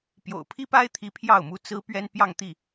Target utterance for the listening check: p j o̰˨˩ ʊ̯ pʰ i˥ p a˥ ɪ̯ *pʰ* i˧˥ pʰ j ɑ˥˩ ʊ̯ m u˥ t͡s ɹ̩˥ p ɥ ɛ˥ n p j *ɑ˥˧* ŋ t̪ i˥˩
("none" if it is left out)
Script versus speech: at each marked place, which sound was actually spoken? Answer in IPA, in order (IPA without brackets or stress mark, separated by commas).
t̪ʰ, ɑ˥˧